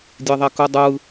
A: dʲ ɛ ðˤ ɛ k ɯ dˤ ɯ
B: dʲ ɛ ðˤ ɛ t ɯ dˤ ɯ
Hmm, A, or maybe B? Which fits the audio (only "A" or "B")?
A